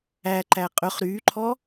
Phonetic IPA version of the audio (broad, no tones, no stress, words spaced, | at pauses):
æǃæ qʼɵχ ɾyːǃʰɔ